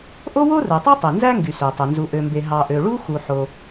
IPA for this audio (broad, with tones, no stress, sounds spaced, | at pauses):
ʔ o˥ w o˥ r ɯ˩ tˤ ø˥ tˤ e˩ n z æ˥ ŋ ɡ y˩ s ø˩ tˤ ø˩ n z u˩ ʔ ø˩ m b e˩ ɦ ɑ˩ ʔ ø˩ ɭ u˥ x u˩ ħ o˩